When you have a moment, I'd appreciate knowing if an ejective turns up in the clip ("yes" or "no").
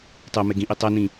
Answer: no